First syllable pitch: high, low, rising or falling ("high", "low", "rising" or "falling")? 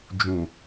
low